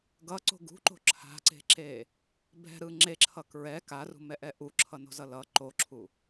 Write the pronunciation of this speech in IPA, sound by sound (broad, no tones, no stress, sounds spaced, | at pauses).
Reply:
ɡ ʌ ǀ o̤ ɡ ṳ ǃ o̤ ǁʰ a̤ ǀ e̤ ǁ e | b ɛ̤ ɾ ɯ ŋ͡ǁ e ǁʰ ʌ k ɹ ɛ k a r ṳ m ɛ ʔ ɛ ʔ u ǁʰ ʌ n o̤ z ʌ l ʌ ǃ o ǁʰ u